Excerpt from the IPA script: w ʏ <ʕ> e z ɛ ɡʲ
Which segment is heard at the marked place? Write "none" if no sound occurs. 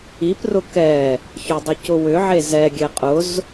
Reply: ʕ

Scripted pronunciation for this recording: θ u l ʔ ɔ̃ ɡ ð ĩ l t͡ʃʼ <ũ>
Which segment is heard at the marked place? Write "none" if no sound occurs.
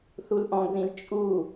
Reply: u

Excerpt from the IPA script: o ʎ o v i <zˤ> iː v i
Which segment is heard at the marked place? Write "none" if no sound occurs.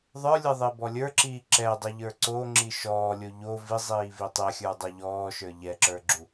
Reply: zˤ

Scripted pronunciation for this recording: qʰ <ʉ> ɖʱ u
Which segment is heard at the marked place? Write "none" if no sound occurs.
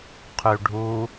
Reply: ʉ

